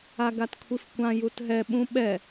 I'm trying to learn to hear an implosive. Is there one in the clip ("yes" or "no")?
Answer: yes